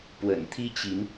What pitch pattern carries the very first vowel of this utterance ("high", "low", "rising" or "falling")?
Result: low